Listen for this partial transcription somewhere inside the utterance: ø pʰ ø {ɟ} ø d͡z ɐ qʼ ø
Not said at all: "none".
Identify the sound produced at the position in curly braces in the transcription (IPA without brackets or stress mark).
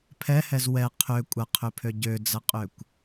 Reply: ɟ